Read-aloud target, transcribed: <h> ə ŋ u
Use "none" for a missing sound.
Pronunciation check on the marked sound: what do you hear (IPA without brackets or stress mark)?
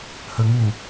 h